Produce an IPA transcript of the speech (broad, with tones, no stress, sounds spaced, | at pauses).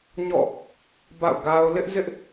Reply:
ɲ ɔ̰˦˨ | b a̰˦˨ ʊ̯ ɡ a˦ ʊ̯ l ɪ˦ ʔ z ɪ˦ ʔ